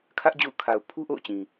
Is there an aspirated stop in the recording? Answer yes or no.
yes